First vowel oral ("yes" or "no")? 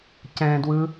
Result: no